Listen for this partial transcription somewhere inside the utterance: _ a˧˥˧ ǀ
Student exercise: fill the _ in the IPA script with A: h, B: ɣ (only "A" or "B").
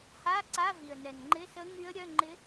A